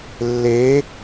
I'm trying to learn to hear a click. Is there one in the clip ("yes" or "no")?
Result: no